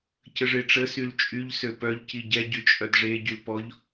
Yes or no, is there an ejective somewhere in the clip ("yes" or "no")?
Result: yes